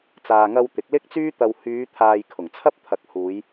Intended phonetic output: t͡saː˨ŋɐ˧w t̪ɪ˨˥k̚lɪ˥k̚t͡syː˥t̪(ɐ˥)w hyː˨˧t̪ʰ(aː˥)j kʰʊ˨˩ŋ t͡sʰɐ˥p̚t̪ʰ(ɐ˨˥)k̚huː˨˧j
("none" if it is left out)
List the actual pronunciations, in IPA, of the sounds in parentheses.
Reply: ɐ˧, aː˨, ɐ˨˥

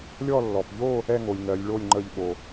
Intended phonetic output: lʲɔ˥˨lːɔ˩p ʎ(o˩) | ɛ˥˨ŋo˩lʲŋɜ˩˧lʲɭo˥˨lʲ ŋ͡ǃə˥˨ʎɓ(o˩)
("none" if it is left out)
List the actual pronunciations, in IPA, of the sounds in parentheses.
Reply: o˥˨, o˩

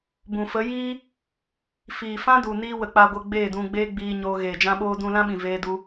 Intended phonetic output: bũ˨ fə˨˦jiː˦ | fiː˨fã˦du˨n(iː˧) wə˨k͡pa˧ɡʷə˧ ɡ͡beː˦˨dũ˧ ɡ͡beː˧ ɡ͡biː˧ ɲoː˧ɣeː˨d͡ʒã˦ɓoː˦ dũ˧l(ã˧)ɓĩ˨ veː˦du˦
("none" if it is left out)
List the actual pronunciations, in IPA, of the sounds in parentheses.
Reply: iː˧, ã˦

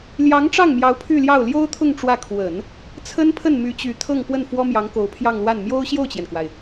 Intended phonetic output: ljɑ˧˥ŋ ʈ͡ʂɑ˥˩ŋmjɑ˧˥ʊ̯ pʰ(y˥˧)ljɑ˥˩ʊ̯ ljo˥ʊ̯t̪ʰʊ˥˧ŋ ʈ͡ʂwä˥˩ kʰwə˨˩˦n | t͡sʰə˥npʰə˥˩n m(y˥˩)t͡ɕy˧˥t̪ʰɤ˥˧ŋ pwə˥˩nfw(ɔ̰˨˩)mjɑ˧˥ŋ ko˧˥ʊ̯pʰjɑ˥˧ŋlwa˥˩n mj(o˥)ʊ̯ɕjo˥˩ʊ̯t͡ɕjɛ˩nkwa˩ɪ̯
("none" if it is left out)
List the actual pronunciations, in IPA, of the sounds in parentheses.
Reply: y˥˧, y˧˥, ɔ˥, o˥

